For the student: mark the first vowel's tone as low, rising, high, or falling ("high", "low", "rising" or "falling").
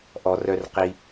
low